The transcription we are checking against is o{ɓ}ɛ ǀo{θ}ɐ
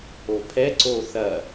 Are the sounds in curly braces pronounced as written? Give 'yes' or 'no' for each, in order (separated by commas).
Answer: no, yes